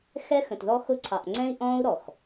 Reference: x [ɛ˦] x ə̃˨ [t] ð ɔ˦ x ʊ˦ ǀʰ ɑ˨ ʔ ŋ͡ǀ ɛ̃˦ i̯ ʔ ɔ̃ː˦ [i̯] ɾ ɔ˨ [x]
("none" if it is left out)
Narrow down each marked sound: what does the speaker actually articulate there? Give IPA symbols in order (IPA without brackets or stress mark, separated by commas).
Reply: ɛ˦, t, u̯, x